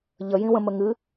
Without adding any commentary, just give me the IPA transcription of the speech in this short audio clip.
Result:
ʎ ə j ĩ w ə̃ m ə ŋ ɨ

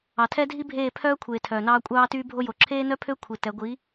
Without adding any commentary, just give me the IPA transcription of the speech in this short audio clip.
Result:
ɑ˨ tʰ ɛ˦ dʱ i˦ bʱ eː˦˨ pʰ œː˦ kʷʰ eː˨ tʰ œː˨ n ɑː˦ kʷʼ ɑː˦ t yː˦ bʱ o˦ j o˨ ǁʰ eː˦ n œ˦ pʰ ø˦ kʷʰ i˨ t ɛ˨˦ ɡʷ i˨˦

